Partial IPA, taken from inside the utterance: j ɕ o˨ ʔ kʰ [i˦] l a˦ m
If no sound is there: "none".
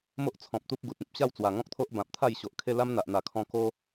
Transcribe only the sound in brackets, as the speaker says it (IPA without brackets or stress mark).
e˦